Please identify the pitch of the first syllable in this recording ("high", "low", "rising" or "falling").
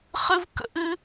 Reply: high